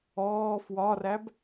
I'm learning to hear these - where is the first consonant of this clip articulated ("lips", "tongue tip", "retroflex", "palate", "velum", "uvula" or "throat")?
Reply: lips